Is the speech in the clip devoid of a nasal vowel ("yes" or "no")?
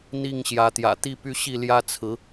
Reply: yes